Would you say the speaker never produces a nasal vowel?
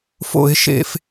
yes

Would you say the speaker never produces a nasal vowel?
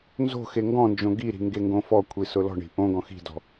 no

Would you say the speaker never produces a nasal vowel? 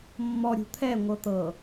yes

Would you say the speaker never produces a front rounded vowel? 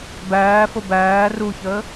yes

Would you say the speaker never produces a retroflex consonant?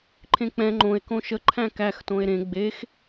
yes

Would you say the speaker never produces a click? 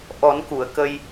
yes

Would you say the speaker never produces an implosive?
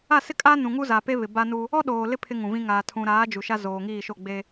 no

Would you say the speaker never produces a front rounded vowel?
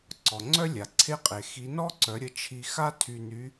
no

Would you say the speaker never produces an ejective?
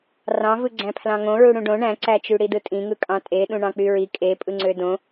no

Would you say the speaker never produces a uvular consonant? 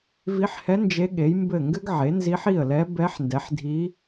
yes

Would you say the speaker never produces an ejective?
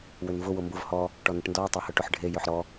yes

